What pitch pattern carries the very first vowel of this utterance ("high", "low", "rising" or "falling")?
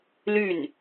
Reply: falling